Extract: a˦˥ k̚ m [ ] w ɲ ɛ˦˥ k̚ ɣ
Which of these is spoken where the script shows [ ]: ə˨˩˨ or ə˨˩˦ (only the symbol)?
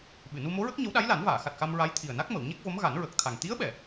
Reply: ə˨˩˨